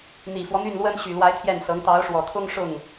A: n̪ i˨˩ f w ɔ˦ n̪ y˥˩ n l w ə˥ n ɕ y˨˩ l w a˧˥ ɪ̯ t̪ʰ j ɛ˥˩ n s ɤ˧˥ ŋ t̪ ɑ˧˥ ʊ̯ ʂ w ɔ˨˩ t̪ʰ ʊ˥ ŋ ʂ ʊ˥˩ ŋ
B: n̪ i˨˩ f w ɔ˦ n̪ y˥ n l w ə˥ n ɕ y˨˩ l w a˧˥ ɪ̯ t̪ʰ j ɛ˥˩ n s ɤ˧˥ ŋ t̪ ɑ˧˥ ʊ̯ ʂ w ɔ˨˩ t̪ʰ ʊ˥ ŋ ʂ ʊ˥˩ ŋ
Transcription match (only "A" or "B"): A